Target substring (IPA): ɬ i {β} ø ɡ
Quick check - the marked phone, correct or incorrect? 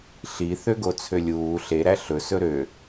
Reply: incorrect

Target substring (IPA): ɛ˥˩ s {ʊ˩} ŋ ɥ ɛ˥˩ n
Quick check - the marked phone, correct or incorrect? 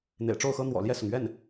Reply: correct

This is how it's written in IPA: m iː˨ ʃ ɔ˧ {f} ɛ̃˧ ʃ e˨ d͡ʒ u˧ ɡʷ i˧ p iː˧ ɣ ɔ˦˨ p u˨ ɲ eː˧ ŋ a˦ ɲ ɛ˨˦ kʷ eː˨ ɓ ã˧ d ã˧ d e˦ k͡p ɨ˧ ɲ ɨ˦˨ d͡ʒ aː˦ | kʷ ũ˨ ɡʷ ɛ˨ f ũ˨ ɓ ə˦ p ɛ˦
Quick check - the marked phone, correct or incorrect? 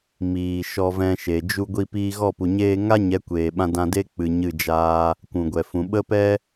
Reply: incorrect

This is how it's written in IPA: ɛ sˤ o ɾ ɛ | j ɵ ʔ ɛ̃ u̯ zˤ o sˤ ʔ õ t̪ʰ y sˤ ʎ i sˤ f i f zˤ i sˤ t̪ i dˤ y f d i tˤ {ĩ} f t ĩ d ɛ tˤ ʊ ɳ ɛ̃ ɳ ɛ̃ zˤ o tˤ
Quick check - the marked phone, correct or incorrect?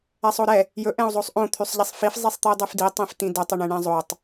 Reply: correct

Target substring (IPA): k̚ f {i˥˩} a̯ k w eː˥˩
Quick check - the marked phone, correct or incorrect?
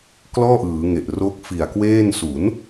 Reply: incorrect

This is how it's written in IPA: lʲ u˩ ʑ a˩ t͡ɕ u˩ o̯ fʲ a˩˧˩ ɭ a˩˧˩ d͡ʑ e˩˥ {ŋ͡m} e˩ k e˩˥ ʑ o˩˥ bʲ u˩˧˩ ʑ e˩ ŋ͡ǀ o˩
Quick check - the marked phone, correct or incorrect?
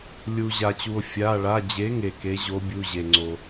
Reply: incorrect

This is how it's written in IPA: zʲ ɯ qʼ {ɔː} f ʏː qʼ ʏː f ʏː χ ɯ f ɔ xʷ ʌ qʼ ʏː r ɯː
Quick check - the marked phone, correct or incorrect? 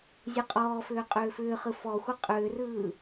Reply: correct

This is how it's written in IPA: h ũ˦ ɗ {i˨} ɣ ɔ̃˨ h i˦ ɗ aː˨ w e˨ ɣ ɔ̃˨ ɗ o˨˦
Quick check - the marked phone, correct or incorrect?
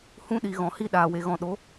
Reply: correct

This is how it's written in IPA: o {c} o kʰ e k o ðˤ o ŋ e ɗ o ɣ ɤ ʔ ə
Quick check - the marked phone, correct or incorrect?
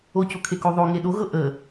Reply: correct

